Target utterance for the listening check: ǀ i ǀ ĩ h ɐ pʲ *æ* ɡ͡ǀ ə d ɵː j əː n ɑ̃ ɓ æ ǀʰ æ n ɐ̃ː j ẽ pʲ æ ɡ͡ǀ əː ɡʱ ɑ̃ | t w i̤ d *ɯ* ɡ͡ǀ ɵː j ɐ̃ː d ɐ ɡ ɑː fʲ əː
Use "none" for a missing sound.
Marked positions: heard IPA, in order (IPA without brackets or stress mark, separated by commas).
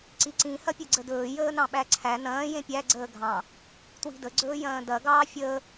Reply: ə, ə